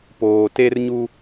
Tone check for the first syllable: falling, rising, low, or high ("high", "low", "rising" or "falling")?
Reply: low